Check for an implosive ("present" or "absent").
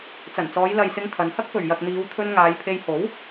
absent